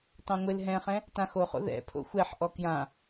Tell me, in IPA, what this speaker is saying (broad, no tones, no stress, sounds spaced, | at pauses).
t ɑ̃ ŋʷ ɪ l ɦ ɛ̃ χ ɛ̃ | t ã x o χ o̰ ð ɛ̰ pʰ o̰ xʷ ɛ ħ ʔ ɔ k j ã